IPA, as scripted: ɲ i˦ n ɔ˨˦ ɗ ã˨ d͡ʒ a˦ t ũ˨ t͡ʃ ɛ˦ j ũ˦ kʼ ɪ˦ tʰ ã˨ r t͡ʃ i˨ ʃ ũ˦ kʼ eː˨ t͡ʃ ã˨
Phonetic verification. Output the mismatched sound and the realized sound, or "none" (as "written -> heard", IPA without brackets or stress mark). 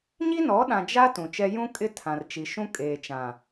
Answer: none